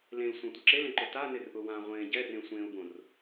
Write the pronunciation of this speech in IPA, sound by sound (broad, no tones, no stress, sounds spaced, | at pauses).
l ẽ l sʷ ã tʷ ɪ ǁ e l ẽ ǃ ʊ t a n ɪ r ʔ ʊ w ã ʁʷ ẽː ɟ ɛ r ẽ sʷ ẽː u̯ b õ r